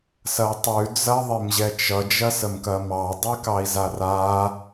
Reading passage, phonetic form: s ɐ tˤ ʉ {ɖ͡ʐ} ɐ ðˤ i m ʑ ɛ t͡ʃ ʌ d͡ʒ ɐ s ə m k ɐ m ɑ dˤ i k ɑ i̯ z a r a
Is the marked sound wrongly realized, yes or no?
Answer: yes